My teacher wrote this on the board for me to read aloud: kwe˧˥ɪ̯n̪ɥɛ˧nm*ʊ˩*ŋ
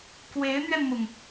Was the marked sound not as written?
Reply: no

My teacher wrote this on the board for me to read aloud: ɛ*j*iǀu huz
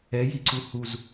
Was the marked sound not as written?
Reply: no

